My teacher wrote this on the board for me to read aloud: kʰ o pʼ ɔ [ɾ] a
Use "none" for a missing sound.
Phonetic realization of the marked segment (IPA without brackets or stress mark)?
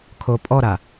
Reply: ɾ